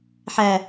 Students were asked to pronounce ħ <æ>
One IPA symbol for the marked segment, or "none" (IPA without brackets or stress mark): æ